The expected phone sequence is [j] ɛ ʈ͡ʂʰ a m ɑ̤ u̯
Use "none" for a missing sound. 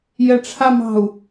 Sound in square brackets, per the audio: j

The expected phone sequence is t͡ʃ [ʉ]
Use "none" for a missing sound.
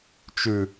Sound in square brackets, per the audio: ʉ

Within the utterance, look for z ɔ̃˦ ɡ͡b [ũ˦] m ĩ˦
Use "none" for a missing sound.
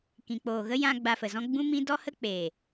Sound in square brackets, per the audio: ũ˦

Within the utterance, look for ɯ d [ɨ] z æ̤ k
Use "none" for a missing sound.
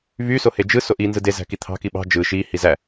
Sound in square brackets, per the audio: e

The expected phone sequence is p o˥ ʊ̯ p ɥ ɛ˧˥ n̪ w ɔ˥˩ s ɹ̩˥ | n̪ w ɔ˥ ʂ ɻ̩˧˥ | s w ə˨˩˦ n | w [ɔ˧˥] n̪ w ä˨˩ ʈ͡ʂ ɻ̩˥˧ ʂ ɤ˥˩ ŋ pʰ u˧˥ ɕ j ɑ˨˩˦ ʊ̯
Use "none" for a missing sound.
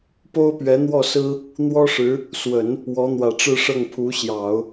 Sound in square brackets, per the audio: ɔ˧˥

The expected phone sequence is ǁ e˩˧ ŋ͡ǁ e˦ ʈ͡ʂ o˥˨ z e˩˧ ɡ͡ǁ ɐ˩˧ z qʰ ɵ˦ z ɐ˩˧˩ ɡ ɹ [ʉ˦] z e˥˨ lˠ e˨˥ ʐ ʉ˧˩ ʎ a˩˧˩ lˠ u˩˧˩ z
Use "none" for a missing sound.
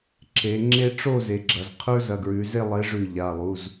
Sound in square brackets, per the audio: ʉ˩˧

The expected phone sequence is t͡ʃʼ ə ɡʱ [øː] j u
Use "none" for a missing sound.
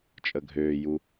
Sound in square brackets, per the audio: øː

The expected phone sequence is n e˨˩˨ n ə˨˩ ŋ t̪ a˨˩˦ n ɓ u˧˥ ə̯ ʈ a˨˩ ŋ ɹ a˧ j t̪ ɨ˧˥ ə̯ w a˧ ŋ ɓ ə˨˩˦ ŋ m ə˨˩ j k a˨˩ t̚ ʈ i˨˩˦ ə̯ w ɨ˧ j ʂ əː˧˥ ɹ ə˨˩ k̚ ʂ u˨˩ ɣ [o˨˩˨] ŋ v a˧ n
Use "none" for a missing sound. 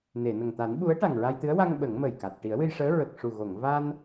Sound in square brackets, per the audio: o˨˩˨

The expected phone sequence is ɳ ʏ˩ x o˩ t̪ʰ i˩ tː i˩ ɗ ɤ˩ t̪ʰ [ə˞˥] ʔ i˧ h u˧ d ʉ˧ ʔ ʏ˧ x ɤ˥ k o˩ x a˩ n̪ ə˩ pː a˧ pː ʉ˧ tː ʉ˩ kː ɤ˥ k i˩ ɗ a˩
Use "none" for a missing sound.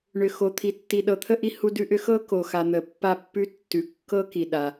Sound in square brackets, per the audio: ə˥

